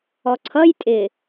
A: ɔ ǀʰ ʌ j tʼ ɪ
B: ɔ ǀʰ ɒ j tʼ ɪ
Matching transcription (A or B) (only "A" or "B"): A